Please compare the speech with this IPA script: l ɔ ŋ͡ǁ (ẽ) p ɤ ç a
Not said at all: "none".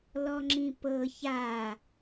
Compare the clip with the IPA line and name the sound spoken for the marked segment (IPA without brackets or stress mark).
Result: ĩ